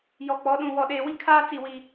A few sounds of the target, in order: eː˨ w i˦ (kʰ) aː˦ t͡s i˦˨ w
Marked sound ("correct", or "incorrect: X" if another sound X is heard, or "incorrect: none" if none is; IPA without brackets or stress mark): correct